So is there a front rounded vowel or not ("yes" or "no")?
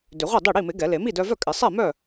yes